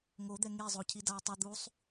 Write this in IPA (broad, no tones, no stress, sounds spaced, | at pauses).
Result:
ŋ o d̪ ɛ ŋ e zˤ o cʰ i d a o̯ tˤ ʌ d̪ u sˤ